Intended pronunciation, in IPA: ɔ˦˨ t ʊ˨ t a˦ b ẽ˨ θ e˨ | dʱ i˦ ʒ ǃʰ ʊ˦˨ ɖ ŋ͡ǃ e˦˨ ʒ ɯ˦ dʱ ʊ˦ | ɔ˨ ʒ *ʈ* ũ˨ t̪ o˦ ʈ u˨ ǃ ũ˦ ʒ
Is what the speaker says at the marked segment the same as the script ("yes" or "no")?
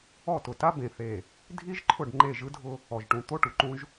yes